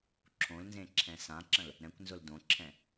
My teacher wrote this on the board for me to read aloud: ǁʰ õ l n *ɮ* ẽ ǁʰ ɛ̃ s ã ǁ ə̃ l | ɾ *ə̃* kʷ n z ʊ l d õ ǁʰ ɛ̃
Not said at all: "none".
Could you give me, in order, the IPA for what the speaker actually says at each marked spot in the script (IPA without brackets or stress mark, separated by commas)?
z, ɛ̃